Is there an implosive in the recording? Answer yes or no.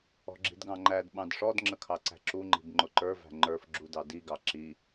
yes